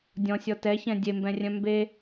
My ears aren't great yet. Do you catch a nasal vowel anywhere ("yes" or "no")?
yes